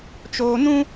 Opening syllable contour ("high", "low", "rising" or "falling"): high